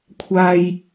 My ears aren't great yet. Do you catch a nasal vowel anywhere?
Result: no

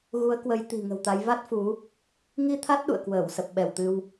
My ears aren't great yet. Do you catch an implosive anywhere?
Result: yes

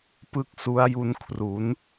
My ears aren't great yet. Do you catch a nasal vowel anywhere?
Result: no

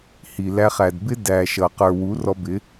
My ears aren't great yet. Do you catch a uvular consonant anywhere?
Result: yes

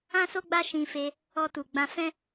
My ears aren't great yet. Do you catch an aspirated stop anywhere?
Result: no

